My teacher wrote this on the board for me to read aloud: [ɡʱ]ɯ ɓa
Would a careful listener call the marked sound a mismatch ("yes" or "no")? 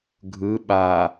no